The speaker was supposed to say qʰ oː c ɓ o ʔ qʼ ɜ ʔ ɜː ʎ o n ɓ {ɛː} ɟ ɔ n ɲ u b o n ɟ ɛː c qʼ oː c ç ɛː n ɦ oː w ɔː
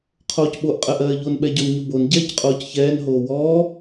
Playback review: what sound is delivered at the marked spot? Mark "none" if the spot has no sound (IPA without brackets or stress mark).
ɛ